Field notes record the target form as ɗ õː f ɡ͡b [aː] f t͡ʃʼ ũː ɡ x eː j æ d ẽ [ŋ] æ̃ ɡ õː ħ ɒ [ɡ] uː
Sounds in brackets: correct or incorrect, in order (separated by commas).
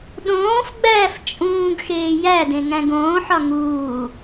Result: incorrect, correct, incorrect